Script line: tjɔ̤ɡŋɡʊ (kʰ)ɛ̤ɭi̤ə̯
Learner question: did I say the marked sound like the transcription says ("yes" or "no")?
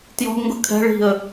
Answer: yes